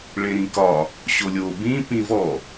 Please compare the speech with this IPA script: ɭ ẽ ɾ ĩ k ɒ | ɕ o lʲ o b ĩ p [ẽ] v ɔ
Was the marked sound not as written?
yes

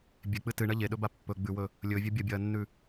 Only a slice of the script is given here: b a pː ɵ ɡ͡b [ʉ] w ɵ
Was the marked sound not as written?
no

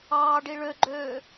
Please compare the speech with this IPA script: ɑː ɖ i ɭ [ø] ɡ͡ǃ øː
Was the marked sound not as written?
no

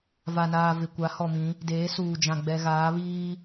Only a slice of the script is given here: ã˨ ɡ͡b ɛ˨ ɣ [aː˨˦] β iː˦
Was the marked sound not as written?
no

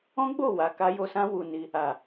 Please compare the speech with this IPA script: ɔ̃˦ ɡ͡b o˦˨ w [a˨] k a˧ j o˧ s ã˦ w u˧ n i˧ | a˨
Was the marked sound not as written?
no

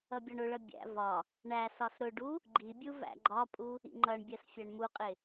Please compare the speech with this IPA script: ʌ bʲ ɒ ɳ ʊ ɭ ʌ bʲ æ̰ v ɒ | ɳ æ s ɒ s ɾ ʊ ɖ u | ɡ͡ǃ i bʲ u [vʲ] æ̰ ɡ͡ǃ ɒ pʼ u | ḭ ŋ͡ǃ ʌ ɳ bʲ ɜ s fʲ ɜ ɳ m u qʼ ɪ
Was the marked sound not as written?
yes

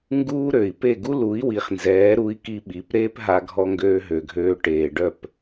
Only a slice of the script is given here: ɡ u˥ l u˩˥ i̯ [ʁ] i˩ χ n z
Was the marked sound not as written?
yes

